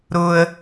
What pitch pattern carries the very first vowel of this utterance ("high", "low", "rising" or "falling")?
low